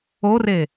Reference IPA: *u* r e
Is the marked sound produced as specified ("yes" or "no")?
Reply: no